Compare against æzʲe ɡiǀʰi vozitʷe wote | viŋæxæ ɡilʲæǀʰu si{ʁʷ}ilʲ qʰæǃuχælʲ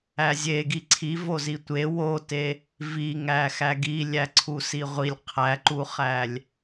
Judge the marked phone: correct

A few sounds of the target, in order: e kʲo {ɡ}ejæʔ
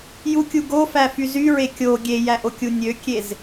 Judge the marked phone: incorrect: ɡʲ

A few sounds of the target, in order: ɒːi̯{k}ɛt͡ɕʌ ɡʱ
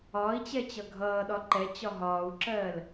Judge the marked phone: incorrect: t͡ɕ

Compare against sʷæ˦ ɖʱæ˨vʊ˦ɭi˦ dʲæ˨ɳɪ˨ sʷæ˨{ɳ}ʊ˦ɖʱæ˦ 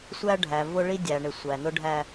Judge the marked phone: incorrect: n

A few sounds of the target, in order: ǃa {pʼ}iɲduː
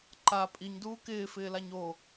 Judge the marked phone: correct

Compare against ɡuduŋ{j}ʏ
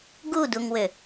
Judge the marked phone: incorrect: w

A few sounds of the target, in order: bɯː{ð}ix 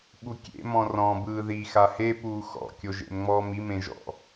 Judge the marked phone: correct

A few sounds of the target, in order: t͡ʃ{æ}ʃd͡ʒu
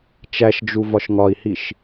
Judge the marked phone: correct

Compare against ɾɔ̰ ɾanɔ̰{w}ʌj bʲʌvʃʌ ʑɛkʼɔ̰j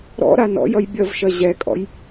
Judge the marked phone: incorrect: j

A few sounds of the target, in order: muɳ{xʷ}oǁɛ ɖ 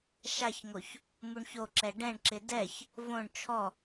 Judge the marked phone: incorrect: ç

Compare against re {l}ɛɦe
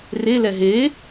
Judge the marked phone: correct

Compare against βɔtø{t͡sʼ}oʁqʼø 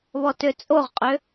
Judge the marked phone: correct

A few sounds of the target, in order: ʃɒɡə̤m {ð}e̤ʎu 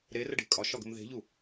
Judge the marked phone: correct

